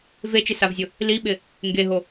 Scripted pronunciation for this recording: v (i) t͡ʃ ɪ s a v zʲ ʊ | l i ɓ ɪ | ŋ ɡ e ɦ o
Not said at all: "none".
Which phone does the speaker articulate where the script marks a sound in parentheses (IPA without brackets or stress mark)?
e